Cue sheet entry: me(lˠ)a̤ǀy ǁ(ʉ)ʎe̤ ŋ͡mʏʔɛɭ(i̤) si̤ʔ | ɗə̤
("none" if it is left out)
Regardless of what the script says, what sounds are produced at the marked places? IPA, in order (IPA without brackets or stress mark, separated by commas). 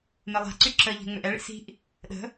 lˠ, ə, ḭ